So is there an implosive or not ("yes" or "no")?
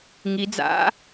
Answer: no